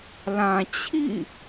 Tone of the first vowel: low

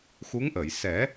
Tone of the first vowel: rising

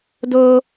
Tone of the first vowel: high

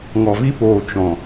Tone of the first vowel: low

